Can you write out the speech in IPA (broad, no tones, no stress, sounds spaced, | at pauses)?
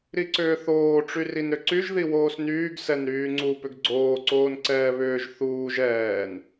ɾ i ǀ ʏː θ oː ʈ͡ʂ y r i n ɾ ʏ ǀ y ʒ ð i w oː s n yː ɡ s ɛ n ɾ yː ŋ͡ǀ u p ʏ ɡ ɡ͡ǀ oː ǀ oː n ǀ ɛː β ʏː ʒ θ uː ʒ ɛː n